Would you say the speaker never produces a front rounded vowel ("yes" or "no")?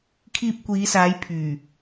no